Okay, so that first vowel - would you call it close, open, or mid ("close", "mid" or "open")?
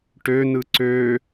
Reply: mid